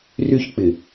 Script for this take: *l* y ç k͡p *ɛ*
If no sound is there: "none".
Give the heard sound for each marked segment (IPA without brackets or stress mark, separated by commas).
r, ɪ